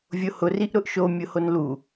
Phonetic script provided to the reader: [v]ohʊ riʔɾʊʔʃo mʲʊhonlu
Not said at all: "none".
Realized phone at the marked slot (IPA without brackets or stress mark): vʲ